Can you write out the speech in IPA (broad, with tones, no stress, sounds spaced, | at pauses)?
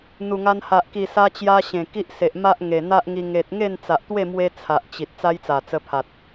n̪ u˨˩ ŋ a˧ n h a˨ ʔ k i˨˩ s a˧ t͡ɕ j a˧ ɕ ẽ˨˩ k i˦ ʔ s e˨ ʔ m a˦ ʔ ŋ e˨˩ n̪ a˦ ʔ ŋ i˧ ŋ e˨ t̚ ŋ e˥˧ n t͡s a˨ ʔ t̪ w e˥˧ m w e˧ t͡sʰ a˨ ʔ t͡ɕ i˨ t̚ t͡s a˦ j t͡s a˨˩ t͡s ə˧ pʰ a˨ t̚